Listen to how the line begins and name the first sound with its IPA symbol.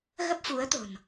ɣ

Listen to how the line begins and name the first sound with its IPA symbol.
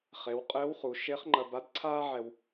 χ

